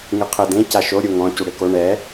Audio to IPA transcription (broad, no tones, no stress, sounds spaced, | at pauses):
ŋ ɨ qʰ ɘ d ẽ c a ʃ o ɾʲ u ŋ ɔ̃ c u ɽ e k o ɳ ɛ